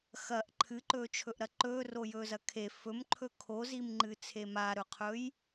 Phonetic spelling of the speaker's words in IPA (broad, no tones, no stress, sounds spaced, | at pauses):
x ɐ ʔ ǃʰ ɨ ǃ ɵː t͡ʃʰ ɵ ʔ ɾ ɐ ǃ ɵː r o j ɵː z ɐ kʰ e f ɵ m ǃʰ ɵ kʰ o z i m ŋ͡ǃ ɨ t͡sʰ e m a ɾ ɵ qʰ ɵ j